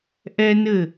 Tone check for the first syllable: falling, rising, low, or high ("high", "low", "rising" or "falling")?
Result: high